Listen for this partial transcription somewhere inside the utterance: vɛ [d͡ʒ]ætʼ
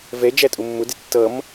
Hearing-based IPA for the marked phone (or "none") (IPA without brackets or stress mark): d͡ʒ